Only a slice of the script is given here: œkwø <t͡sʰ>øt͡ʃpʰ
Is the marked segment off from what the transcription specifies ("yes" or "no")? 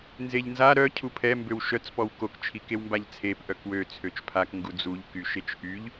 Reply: no